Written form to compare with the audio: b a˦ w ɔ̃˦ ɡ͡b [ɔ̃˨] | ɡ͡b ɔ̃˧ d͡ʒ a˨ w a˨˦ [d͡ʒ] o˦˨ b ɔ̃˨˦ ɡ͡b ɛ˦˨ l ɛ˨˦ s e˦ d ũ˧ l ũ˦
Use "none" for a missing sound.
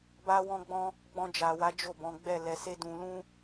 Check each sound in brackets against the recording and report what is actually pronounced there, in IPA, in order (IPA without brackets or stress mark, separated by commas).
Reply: ɔ̃˦, d͡ʒ